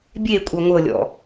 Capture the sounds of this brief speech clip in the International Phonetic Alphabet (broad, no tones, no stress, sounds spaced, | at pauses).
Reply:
bʲ e kʷʼ ɤ ŋʷ ɤ lʲ ɔ̰